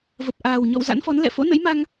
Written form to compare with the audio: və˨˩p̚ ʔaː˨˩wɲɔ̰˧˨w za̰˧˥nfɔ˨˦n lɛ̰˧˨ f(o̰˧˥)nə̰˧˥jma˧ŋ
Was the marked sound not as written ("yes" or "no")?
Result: no